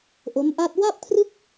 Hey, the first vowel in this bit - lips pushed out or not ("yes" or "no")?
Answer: yes